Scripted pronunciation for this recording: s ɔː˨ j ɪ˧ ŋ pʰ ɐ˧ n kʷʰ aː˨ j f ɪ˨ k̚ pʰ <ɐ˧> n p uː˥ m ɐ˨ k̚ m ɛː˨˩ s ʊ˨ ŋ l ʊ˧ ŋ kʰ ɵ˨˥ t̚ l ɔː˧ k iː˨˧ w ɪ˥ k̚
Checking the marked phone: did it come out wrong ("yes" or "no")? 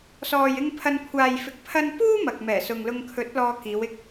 no